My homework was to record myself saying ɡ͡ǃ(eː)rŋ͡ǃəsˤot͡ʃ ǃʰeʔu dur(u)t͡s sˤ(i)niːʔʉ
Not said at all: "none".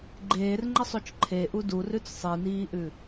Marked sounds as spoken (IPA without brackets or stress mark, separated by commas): eː, ʉ, i